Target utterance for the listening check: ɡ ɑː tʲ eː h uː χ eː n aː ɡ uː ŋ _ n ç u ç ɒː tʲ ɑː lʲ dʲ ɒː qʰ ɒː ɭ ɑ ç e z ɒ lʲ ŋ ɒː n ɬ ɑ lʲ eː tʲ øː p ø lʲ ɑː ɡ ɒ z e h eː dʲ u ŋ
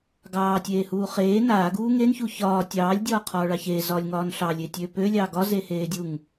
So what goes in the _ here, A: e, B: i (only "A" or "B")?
A